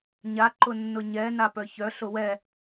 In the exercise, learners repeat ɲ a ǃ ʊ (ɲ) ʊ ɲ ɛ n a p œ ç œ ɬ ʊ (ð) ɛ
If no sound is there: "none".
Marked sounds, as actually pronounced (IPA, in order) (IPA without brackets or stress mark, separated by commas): nː, w